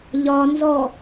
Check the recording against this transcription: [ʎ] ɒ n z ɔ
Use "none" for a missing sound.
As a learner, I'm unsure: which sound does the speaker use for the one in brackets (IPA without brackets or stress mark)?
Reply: ʎ